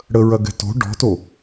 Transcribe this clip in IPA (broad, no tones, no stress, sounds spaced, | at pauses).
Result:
ɽ ə ɹ ɐ ɡ ɛ̤ t o̤ ɖ ɔ̤ t o